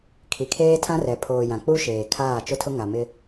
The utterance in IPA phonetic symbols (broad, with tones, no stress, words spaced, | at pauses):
kʰi˨kʰeː˦tʰã˦rɛ˨ pʰoː˨jã˨k͡pu˦ʃeː˨ kʰaː˦˨t͡ʃʊ˦tʰʊ˦ ŋa˨mɪ˦